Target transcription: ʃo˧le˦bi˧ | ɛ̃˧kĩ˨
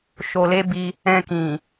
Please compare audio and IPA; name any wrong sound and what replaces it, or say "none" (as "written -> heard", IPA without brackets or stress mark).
none